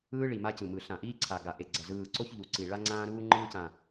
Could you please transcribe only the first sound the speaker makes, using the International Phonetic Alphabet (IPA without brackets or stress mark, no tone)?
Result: ɯː